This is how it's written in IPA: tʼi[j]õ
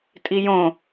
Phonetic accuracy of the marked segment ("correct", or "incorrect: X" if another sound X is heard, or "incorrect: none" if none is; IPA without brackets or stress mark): correct